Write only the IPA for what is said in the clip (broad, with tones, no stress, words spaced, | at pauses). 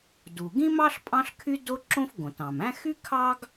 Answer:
du˩ɡĩ˥mɑ˥ɬ pʼɑ̃˥ɬkʰy˥do˥ǁõ˥f ɡõ˩tɑ̃˩mæ̃˥ xy˥ kʰɑ˥ɡ